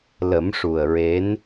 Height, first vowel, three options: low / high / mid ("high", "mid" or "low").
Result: mid